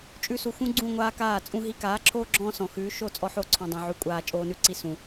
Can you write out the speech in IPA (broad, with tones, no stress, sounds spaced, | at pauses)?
t͡ʃʼ ʉ˧ s u˨ x ũ˦ ɡ͡ǀ ũ˦˨ ŋʷ aː˦ k aː˦˨ t͡sʼ ũ˦ ɦ i˧ k aː˨˦ ǁʰ oː˦ ɡ͡ǁ ɔ̃ː˦ s ɔ̃˨ x ʉː˨˦ ʃ o˦˨ t͡sʼ ɔ˦ ħ o˦ ǀʰ ɔ̃˧ dˤ ũ˨ ʕ ʉ˧ kʷʼ aː˧ t͡ʃʼ oː˦ n ʉ˦ ǀ i˦ s ũ˨